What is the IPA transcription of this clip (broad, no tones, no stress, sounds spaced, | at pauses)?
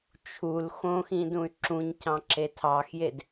t͡ʃʰ u l x õ x ĩ d ũ y̯ ǁ ũ ɲ c ɑ̃ ǁ e tʰ ɑ x j e d